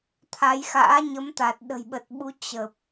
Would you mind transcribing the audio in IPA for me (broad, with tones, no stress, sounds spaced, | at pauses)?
t̪ʰ a˨˦ j x a̰ː˧˥ ɲ ə˨˦ m t̪ a˨˩ t̚ ɗ ə̤˨˩ j ɓ ə˨˩ t̚ ɓ u˨˦ t͡ɕ ə˨˩ p̚